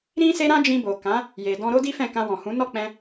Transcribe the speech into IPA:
ɾĩ˦se˦ɾã˦ d͡ʒĩ˧bo˨ kã˨˦ | je˨ dɔ̃˧ɾo˦di˦fɛ̃˦˨ kã˧wɔ̃˨hũ˨˦ nɔ˦˨k͡pɛ̃˧

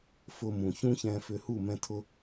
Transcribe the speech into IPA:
fʊ˦mũ˨ çũ˦çɛ̃˧fʏ˧hu˦˨ mɛ̃˦tʰʊ˦

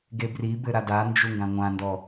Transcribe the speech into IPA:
ɡebribɘ ɾadand͡ʒu ŋɡãŋʷãndɔ

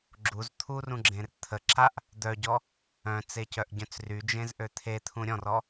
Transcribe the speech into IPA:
ɡ͡ǁuz t̪ʰurũɡ͡ǁẽr t̪ʰə ǁaʔ | d̪œɟɔ | œ̃t͡secœʔɟœ̃t͡s ryd͡ʒẽzʔø t̪ʰet̪ʰũ ɾʲɔ̃rɔ

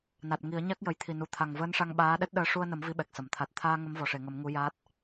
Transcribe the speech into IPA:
na˨˩t̚ ŋi˨˩˦ə̯ɲa˦˥k̚ jə˨˩˨jt̪ʰi˨˩nu˨˩ t̪ʰa˨˩ŋvəː˧˥nʂa˧ŋ ɓaː˧˥ ɗɛ˦˥t̚ɗəː˧˥ ʂu˧ə̯nə˨˩˦m vi˧˥ɓɛ˨˩k̚sə˨˩˨m t̪ʰa˨˩t̚t̪ʰaː˧ ŋə˧˥mvɔ˨˩ʂe˨˩˨ ŋə˨˩˦mŋu˧˥jaː˦˥t̚

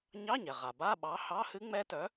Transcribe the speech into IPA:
ɲɑ˧˥˧ɲɛ˩ ʁa˩ba˧˥˧ ɓɑ˨˥hɑ˧˥˧hɨ˦˥ŋ͡mɛ˦˥ tœ˨˥

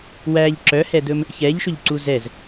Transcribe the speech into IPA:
wæʎ ǁœhɛdɵm | çɛʎʃɵʎǀu zɛz

